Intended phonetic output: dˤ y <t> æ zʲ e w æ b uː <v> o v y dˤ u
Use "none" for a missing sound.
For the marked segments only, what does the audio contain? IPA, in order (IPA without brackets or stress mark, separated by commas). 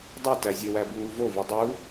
t, v